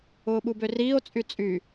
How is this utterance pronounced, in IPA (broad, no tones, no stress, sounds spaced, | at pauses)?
ʊː ɓ u b ø r iː o̯ t͡sʼ y t͡sʼ y